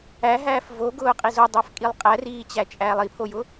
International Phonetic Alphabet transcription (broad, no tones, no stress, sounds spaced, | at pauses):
æ ɦ æː f v o ɡ ʊː qʼ i z o dˤ æ f kʼ i lˠ qʼ æ r iː t͡ɕ æ t͡ʃʼ æː lˠ i pʰ o j ʊ